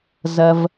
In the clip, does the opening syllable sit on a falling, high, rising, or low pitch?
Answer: low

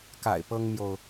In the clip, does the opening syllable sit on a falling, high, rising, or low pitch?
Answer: low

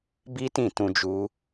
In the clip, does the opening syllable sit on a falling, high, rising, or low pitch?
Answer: high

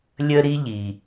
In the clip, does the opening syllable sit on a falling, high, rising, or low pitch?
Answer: high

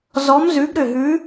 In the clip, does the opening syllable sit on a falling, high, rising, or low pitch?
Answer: rising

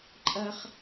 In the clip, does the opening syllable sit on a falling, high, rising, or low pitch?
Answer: high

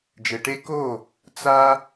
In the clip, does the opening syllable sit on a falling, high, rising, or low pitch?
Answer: low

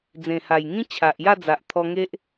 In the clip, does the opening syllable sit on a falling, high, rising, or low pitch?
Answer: low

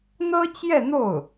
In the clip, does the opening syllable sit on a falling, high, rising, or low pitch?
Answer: high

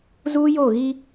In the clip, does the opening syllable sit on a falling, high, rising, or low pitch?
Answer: high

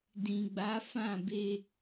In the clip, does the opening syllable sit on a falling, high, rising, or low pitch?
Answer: low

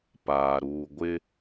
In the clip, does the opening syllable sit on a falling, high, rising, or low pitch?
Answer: low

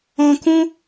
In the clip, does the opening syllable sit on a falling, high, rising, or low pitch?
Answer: high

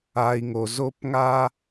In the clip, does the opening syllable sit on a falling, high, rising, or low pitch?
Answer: low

